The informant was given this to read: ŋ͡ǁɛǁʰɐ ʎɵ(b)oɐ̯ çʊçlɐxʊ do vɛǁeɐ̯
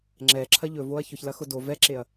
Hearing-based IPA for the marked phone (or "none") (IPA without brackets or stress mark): v